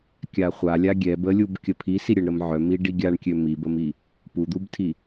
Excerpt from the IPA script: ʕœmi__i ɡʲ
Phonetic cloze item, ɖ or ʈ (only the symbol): ɖ